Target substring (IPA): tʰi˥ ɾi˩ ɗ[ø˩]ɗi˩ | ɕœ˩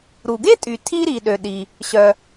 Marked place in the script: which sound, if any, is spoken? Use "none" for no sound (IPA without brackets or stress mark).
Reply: ø˩